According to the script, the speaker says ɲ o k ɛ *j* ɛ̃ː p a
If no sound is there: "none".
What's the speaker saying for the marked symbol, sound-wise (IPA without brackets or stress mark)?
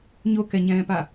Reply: ɲ